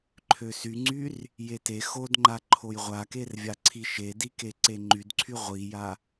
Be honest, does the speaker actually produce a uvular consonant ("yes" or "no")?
yes